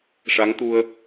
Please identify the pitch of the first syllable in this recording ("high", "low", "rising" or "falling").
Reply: rising